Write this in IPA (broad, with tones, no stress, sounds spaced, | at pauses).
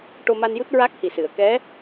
ʈ o˧ m a˧ n j u˦˥ t̚ ɹ a˦˥ k̚ h i˨˩ s ɨ˨˩˨ ə̯ k ɛ˧˥